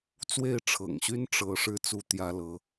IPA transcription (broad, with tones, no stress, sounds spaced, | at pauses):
t͡s w e˥˩ ɪ̯ ʈ͡ʂʰ ɤ̰˨˩ ŋ ɕ y˥ n ʈ͡ʂ ɤ˥ ʂ ɻ̩˥˩ t͡s u˥ t̪ j ä˥ l ɤ˧˥